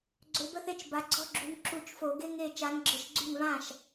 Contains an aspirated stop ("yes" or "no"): no